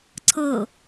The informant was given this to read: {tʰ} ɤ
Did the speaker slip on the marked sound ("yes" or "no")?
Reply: yes